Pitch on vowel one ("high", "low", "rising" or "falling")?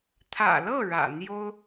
low